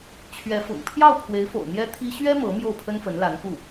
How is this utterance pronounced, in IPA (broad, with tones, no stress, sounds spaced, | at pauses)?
t͡ɕʰ ɥ ɛ˧˥ f ʊ̰˨˩ ŋ pʰ j ɑ˥˩ ʊ̯ pʰ w e˧˥ ɪ̯ f o̰˨˩ ʊ̯ n̪ j ɛ˥ t̪ʰ i˥ ɕ ɥ ɛ˥ m ɤ˧˥ m j o˥˩ ʊ̯ pʰ ə˥ n f ə˧˥ n l a˧˥ n k u˥˩